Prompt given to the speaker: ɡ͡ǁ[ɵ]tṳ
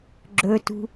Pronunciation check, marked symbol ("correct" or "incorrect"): correct